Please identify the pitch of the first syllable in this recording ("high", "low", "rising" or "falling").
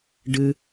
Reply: high